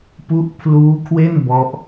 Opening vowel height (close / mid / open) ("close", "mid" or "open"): close